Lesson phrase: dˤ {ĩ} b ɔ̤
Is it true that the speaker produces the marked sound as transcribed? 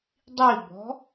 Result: no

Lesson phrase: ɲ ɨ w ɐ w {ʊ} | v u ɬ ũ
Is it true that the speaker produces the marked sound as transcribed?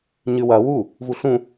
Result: no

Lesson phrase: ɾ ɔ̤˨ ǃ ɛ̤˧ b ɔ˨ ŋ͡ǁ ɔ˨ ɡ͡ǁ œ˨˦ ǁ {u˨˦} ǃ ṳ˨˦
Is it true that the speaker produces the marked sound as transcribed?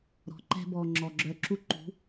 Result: no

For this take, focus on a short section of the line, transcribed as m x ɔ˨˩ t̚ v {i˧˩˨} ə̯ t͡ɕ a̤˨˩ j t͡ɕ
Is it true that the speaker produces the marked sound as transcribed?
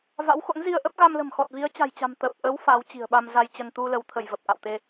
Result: no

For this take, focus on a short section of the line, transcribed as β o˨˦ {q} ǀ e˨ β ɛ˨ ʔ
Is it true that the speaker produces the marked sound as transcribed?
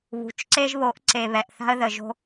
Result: no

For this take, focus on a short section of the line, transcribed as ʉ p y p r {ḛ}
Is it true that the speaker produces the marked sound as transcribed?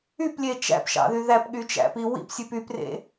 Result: yes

